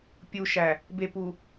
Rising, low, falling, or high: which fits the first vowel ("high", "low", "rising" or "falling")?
low